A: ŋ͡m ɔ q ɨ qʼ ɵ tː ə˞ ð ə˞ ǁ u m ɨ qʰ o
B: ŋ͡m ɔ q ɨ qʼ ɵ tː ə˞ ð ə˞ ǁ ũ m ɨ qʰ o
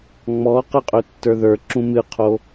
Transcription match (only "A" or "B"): B